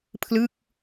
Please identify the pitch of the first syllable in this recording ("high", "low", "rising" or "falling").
falling